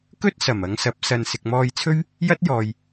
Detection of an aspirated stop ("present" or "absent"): present